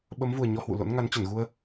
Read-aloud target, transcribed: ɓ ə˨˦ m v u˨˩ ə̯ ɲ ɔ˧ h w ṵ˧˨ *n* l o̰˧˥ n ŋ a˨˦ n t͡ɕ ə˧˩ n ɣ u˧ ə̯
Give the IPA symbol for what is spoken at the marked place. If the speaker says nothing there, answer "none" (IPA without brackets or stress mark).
none